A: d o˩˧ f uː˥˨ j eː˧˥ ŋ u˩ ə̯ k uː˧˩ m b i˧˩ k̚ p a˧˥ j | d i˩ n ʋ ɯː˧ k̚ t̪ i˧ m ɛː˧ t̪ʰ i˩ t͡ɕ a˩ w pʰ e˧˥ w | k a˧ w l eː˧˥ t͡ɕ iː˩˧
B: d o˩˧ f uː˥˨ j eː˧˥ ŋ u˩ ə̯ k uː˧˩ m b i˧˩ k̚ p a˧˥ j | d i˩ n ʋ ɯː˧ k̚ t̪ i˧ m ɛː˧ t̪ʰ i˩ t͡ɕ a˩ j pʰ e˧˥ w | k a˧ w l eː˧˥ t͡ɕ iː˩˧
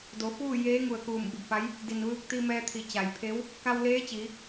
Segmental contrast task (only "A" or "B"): B